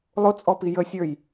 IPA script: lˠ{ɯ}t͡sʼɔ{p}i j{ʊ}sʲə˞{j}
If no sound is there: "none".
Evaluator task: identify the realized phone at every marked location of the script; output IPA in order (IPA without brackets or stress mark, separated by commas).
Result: ʊ, p, ə, j